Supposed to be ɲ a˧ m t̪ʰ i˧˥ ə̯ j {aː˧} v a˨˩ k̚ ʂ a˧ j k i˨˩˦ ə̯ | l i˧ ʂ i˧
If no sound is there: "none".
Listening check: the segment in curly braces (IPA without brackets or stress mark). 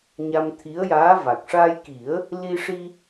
aː˧˥